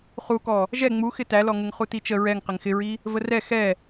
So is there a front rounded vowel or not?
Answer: no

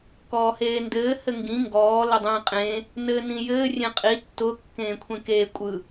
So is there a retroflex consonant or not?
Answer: no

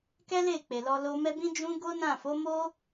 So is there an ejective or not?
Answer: no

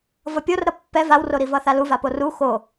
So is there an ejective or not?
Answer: no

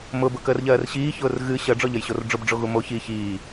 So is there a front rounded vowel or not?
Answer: no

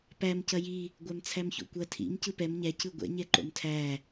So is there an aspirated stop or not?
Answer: yes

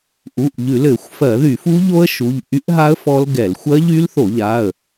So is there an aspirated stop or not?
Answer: no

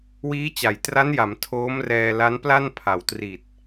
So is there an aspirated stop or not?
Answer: yes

